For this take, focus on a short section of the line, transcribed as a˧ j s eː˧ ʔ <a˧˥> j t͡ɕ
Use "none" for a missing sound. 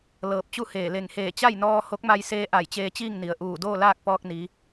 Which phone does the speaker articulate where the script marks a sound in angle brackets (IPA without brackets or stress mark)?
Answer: a˧˩